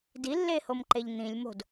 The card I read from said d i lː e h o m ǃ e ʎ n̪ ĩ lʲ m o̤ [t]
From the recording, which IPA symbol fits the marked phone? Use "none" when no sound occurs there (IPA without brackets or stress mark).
d